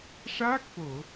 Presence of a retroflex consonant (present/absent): present